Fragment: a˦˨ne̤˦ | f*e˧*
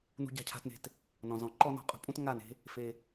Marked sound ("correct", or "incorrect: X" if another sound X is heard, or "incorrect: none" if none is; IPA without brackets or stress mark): correct